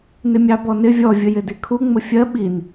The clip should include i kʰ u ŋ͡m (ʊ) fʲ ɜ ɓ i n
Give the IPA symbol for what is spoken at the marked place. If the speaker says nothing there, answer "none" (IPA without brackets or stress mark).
ʊ